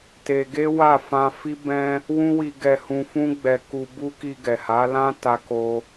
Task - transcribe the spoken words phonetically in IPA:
t e˧ ɡ e˦ w a˦˨ f ã˧ f i˦ b ɛ̃˦ | w ũ˦ w i˧ ɡ ɛ˧ h ũ˧ f ũ˦ ɡ͡b ɛ˧ k u˧ b u˦ k i˧ ɡ ɛ˨ h a˨˦ l ã˦ t a˦ k o˦

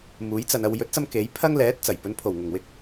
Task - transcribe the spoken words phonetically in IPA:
m uː˨˥ j t͡s ɐ˨ n ɐ˨ w j ɵ˨˥ t̚ t͡s ɐ˧ m k e˨˥ j pʰ ɐ˥ ŋ l ɛː˨˥ t̚ t͡s ɐ˨˩ j p ɵ˨˧ n pʰ o˨˩ w ŋ ʊ˨˩ ŋ w ɪ˧ k̚

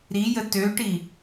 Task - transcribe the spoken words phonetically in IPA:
ɾ i j ə t ø ʈ i

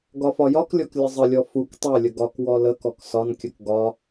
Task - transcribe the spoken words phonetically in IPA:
ɡ ɒ f ɒ j ɒ k lʲ ɔ k lʲ ə zˤ ə lʲ ɔ f u k tˤ æ lʲ ə ɡ ɒ k w ɔ l ə k ɔ k s ɒ n kʲ ə k ɡ ɒ

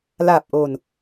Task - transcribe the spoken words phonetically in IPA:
l aː˨˩ p̚ ʔ o˨˩ n

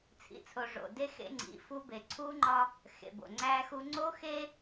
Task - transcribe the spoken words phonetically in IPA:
t͡sʰ ḭ˨ t͡sʰ o˨ ʐ o̰˨ d e˦ x ḛ˦ ŋ͡ǀ ḭ˨˦ f u˦ b e˨ ǀʰ uː˦ ŋ͡ǃ ɒ˦ | x ḛ˨ b o̰˨ ŋ͡ǀ æː˦ x u˦ ŋ͡ǀ oː˦ x e˦

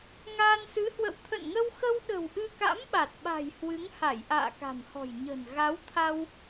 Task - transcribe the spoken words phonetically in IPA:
ŋ aː˧ n s ɨ˨˦ h w ə̰˧˨ w t̪ʰ ə̰˧˨ n ŋ ə˧ w x ə˧ w ɗ ə̤˨˩ w ʔ ɨ˧ k a̰˧˥ m ɓ a˨˩ t̚ ɓ a̤˨˩ j h w ɨ˨˦ ŋ h a˧˩ j ʔ a̰ː˧˨ k a̤˨˩ m h ɔ̤˨˩ j ɲ ə̤˨˩ n ɣ a˨˦ w t̪ʰ a˧ w

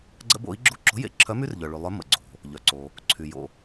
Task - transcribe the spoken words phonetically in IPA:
ɡ͡ǀ ə̰˦ b o̰˨˥ i̯ ɡ͡ǁ u˦ ǁ o̤˨˥ j ḛ˨˥ ǁʰ œ˨˥ m y˦ r ʎ œ˩ ɭ y˩ lˠ œ˨˥ m ə̰˩ ɡ͡ǀ o̤˩ | ʎ œ˩ ǀ o˩ | ǀʰ y˩ j o̰˩

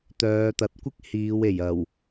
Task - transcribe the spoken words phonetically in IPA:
t̪ œː˨˧ t̪ ɐ˨˥ t̚ kʷ ɪ˥ k̚ h iː˨˧ w e˨˩ j ɐ˨˩ w

